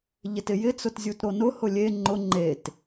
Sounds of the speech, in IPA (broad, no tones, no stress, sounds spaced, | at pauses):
ʎ ɪ t ɪ j ɪ t͡s ʊ t zʲ u t ɾ o n ʊ h ʊ lʲ e ŋ͡ǃ ʊ ŋ͡ǃ e t